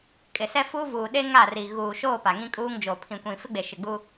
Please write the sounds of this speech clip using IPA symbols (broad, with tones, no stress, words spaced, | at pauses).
kʼɪ˨sɛ˦ fuː˦vuː˨ ɗe˦ŋaː˦˨r i˨ ɣuː˨ʃoː˦˨ pa˨ŋĩ˦kʼuː˦ŋ d͡ʒoː˨ pʰĩ˨kʷĩ˨fɪ˦ɡ͡be˨ ʃɪ˨ɡ͡bu˦